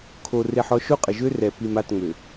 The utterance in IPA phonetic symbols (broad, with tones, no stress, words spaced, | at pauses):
kʰo˨ re˨ħɔ˨ ʃo˦qʼə˨ʒø˦ rɛ˨ pi˨m a˦˨tŋ͡mø˨